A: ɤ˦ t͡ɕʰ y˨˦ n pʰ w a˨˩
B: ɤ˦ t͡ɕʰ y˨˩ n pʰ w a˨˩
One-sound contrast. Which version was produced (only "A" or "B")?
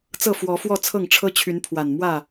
A